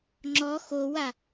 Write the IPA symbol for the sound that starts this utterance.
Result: ŋ͡ǁ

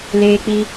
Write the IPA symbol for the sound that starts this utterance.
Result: l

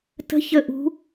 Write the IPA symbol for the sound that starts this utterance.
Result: t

